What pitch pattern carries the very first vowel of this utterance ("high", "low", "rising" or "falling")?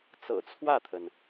low